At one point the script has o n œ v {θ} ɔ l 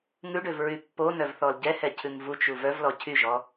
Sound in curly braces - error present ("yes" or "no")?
no